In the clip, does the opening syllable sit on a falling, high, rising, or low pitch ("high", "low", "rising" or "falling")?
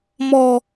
low